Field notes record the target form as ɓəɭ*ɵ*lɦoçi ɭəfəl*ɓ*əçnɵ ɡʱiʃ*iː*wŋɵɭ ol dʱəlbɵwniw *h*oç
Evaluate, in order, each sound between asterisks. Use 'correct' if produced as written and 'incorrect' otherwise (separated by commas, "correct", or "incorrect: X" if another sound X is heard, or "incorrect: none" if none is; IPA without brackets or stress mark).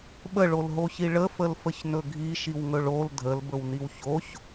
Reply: incorrect: o, incorrect: f, incorrect: i, incorrect: ç